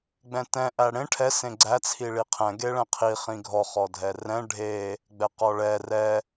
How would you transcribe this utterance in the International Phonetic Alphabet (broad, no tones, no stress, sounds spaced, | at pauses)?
ɡ͡b ɛ̃ t ɛ̃ ʔ æ ɽ ẽ ʈʰ ɛ s ẽ ɡ͡ǀ æ t͡sʰ i ɭ i qʰ ɛ̃ ɡ e ɭ ɛ̃ qʰ i χ ĩ ɡʱ ɔ χ ɔ dʱ ɛ r ɛ̃ ɖʱ e | ɡ͡b ɛ q ɔ ɭ ɛ r ɛ